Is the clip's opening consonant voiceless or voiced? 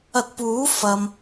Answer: voiceless